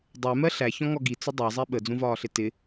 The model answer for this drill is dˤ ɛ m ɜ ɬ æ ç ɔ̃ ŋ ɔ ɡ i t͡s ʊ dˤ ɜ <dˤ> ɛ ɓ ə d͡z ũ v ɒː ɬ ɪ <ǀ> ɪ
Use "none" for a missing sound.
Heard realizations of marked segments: zˤ, t

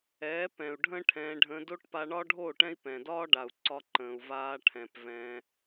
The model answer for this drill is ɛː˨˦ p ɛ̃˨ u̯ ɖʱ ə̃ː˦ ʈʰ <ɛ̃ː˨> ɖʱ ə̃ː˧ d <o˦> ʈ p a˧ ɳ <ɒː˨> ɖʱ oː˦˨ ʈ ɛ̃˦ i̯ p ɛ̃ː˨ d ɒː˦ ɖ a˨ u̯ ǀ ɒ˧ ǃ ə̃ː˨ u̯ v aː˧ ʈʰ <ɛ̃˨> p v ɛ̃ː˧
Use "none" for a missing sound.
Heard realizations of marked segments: ɛ̃ː˧, o˦, ɒː˦, ɛ̃˨

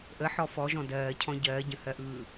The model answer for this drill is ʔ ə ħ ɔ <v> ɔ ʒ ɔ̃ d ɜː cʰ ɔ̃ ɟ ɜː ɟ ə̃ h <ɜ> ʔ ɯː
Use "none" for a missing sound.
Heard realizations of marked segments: f, ɜ

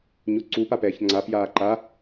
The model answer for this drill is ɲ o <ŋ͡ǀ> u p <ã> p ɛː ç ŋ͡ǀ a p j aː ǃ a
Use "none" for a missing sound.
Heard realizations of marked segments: ǀ, a

